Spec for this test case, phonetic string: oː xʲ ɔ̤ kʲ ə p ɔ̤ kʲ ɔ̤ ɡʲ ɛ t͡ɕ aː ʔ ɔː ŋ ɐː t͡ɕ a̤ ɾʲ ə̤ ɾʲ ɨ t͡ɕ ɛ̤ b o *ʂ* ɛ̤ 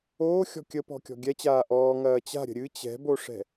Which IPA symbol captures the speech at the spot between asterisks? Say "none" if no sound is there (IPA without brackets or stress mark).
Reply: ʂ